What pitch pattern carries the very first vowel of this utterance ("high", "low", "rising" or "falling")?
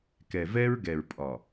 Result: low